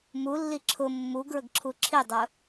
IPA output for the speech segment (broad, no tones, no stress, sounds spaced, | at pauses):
m u lː i ǁʰ ʊ mː u ɡ ɹ ə ɡ ǁʰ u ǁʰ i dˤ ʊ